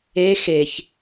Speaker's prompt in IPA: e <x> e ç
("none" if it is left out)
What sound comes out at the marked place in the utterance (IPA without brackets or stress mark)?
x